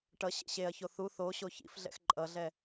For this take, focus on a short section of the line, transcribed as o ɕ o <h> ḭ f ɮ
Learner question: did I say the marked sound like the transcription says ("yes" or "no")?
no